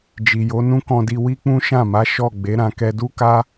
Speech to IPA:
d͡ʒ i˨ j o˨˦ n ũ˦ k ɔ̃˧ d i˧ w i˦ k͡p ũ˦ ʃ ã˦˨ m a˨˦ ʃ ɔ˦˨ ɡ͡b e˨˦ ɾ ã˧ k ɛ˧ d u˦ k a˦

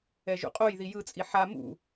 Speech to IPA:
ɛ ʒ ṵ qʼ o j ð i j ɯ t͡sʼ i ħ a m ṵ

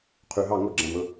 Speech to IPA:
qʰ y˨˩ ɦ ɑ˥˨ ŋ o˥˨ ɡ͡ǁ æ̃˨˩ m ɵ˥˨

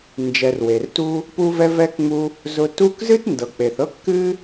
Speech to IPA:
n d͡ʒ ɛ˨ r w e˩ r t u˦ | p u˥ v ɛ˥ v ɛ˥ k ŋ͡m u˦ | z ʊ˦ t u˦ k z ɨ˥ t n d ɤ˨ k͡p e˨ θ ɤ˥ kː ɨ˥

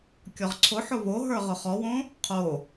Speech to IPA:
kʲ ɔ ʁ ǀʰ ʊ ħ ʊ β o ɦ ə˞ ʁ ʊ χ ɔ w õ | qʰ o

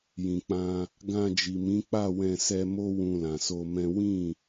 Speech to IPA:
j ĩ˨ k͡p ã˧ | ɡ ã˧ d͡ʒ i˨ m ĩ˨˦ k͡p a˦˨ w ɛ̃˧ s ɛ˧ m o˦ w ũ˧ l ã˨ s o˧ m ɛ̃˦ w ĩ˦˨

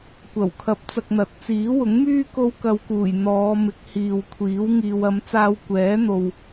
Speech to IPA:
kʷ ɐ˨˩ w kʰ ɐ˨˥ p̚ t͡s ɐ˧ k̚ n̪ ɐ˨˥ t̚ t͡s iː˨˥ w ʊ˨˥ ŋ m yː˥ k o˥ w k ɐ˧ w k uː˨˩ j n̪ ɔː˨˧ m ɪ˨˥ k̚ h iː˨ w kʷʰ iː˨˥ w ŋ iː˨ w ɐ˨˧ m t͡s aː˧ w kʷ ɛː˨˥ n̪ o˨ w

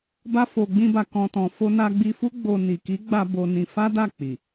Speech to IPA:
b a˧ f o˨ ɡ͡b ĩ˧ b a˨ k ɔ̃˨ t ɔ̃˨ f o˧ n a˧ ɡ͡b i˧ f u˦ ɡ͡b o˧ n i˨ k i˨˦ ɡ͡b a˧ b o˧ n ĩ˧ f a˦ d a˦˨ k͡p i˨

